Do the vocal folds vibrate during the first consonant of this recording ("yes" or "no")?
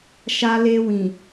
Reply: no